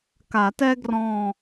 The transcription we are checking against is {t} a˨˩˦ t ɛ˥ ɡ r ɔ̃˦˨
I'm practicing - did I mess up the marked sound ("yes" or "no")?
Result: yes